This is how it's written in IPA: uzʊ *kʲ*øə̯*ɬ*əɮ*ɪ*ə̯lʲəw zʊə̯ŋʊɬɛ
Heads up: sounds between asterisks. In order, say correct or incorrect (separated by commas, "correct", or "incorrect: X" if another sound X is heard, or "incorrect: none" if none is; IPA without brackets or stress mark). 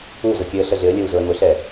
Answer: correct, correct, correct